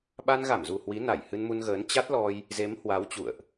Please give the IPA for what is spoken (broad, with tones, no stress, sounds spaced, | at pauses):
ɓ a˧ n ɣ a˧˩ m z u˨˩ h w i˨˦ n a˧˩ j h ɨ˧ n m u˧ n ɣ əː˨˦ n t͡ɕ a˦˥ t̚ l ɔ˧ j | z e˨˦ m h w a˨˦ w t͡ɕ ṵ˧˨ ə̯ ʔ